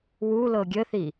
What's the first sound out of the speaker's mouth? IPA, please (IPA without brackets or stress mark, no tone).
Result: w